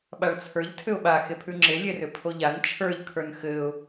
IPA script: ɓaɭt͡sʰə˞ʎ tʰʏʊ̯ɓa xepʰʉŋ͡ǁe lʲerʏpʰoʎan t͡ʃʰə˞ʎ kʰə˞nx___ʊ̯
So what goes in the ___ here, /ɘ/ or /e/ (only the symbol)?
ɘ